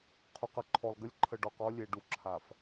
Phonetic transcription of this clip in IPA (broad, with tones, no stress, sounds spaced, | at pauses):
qʰ u˨ q ə˨ ǃʰ ɔ˨ lˠ ɡ ə˦ lʲ ǃʰ ə˨ ɖ ɔ˨ q ɔ˦ lʲ e˨ ɖ u˨ ǁʰ a˨ f